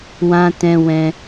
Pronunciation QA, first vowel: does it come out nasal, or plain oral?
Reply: nasal